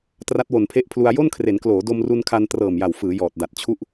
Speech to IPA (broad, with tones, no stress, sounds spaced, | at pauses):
t r a˦˥ t̚ w o˨˩ n pʰ e˦˥ ʔ pʰ l u˧ a̯ j o˥˩ n kʰ r e˩˦ n k l oː˩˦ d o˧ m r u˧ n kʰ a˧ n t r ɤː˨˩ m j a˨˩ w f ɯː˩˦ j ɔː˨˩ t̚ d a˨˩ t̚ t͡ɕʰ u˦˥ ʔ